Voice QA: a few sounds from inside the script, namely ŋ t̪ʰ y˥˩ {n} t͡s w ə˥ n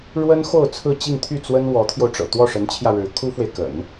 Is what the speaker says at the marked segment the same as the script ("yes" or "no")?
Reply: no